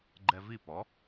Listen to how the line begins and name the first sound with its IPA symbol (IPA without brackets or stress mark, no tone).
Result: ɡ͡ǃ